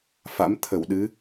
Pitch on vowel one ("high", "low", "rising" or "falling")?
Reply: rising